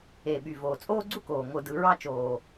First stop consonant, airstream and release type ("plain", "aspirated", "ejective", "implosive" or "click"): implosive